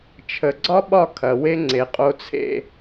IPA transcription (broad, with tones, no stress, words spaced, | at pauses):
t͡ʃʰə˨ɡ͡ǀɒ˦ɓɒ˦˨ kʰɐ˨we˦ŋ͡ǀe˨ qʼo˨t͡sʰḛ˨